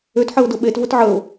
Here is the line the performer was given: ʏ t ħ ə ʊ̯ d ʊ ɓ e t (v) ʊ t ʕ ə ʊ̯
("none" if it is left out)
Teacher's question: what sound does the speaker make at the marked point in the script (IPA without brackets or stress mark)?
v